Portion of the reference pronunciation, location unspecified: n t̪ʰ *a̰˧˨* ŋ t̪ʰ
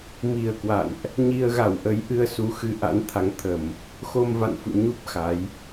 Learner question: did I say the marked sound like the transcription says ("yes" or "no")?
no